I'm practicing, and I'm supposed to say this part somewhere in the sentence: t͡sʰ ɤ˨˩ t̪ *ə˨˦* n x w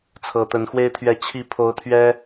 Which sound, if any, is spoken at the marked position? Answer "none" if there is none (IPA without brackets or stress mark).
ə˨˦